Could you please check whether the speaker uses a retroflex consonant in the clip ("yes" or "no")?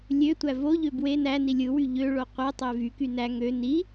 yes